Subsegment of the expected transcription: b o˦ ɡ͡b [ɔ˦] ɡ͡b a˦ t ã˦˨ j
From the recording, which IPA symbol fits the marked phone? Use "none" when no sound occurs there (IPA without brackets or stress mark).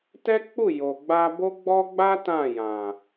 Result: ɔ˦